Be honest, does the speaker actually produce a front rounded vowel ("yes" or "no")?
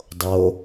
no